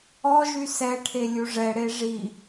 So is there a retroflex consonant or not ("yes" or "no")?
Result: yes